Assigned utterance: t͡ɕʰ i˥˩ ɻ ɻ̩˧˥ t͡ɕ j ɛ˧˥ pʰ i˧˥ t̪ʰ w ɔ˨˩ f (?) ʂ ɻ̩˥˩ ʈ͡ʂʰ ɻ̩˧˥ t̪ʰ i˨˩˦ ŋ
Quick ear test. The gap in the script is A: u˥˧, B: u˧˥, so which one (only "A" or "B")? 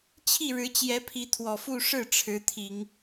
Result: A